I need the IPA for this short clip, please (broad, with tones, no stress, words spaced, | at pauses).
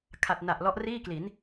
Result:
kʰa˨˩t̚na˨˩ʔ lɔ˦˥ʔriː˥˩kli˩˦n